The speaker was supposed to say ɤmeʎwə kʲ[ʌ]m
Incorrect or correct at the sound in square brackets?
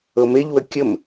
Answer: incorrect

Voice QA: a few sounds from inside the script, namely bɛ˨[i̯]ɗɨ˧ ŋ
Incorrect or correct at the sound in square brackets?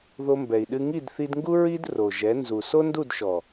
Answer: correct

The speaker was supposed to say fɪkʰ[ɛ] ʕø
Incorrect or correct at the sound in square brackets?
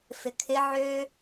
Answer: incorrect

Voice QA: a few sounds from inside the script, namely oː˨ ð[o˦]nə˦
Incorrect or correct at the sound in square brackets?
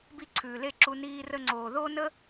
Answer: correct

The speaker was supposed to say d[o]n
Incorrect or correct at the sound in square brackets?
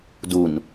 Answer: incorrect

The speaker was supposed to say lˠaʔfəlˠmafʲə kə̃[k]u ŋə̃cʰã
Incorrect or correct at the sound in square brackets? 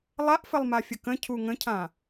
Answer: incorrect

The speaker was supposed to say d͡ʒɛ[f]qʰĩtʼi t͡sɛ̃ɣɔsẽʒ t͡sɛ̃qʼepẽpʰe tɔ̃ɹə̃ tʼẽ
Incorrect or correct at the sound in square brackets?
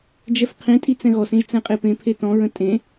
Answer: correct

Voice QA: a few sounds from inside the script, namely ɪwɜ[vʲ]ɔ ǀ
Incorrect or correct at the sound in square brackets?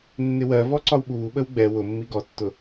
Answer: incorrect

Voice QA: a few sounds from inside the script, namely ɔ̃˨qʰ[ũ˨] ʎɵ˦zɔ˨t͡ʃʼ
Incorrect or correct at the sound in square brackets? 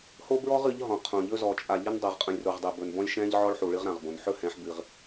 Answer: incorrect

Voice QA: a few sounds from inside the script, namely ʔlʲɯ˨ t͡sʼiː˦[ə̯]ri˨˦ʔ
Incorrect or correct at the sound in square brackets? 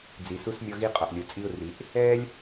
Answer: incorrect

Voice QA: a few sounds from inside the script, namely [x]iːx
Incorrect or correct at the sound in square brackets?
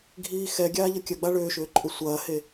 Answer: incorrect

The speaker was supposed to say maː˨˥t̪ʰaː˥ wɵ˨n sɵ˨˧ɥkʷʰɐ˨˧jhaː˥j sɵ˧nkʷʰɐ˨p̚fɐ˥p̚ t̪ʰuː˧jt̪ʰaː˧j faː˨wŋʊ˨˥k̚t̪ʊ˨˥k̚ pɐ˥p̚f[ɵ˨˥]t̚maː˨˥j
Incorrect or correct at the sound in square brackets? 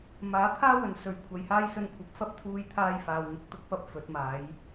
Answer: correct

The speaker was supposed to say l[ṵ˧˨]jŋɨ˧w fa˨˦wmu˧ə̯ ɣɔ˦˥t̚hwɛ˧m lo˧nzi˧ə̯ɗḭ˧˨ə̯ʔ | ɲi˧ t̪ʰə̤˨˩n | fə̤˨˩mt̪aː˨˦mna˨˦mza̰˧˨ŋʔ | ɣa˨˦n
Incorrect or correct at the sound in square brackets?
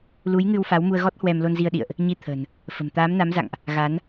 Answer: incorrect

